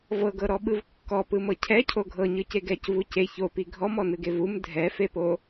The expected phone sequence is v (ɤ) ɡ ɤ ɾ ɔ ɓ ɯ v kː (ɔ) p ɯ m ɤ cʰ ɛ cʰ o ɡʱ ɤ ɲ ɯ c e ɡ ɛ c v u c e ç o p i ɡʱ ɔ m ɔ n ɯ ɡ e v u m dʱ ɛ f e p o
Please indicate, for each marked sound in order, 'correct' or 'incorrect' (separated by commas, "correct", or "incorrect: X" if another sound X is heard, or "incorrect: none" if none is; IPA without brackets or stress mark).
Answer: correct, correct